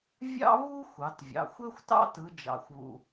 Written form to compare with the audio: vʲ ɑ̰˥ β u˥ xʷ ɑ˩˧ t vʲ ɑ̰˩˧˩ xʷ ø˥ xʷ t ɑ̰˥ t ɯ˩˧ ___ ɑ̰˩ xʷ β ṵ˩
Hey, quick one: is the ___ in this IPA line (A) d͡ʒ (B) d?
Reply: A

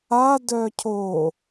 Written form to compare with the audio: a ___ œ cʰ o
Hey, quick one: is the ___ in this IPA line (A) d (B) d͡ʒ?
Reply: A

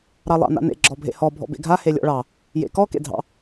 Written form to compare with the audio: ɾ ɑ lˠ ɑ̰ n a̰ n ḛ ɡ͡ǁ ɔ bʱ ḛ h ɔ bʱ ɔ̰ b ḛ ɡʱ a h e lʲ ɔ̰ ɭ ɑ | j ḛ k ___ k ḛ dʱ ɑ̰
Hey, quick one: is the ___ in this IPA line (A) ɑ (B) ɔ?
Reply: B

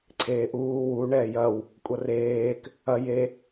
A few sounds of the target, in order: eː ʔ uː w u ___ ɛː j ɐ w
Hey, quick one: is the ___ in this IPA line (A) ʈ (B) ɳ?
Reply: B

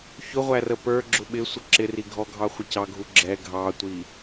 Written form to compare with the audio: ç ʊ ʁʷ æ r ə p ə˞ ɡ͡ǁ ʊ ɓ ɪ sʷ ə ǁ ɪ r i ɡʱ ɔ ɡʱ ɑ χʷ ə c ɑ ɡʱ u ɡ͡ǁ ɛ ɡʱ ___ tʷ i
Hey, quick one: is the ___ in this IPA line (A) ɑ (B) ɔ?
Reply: A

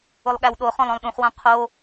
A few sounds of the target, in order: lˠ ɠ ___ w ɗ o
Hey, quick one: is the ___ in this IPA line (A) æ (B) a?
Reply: A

